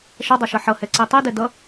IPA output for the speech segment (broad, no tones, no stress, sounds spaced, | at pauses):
ʃ ʌ dˤ ʌ ʃ ʌ ħ ʌ h ɛ ǀ i tˤ i d ɛ d ʌ